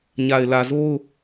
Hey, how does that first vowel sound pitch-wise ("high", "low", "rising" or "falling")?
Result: low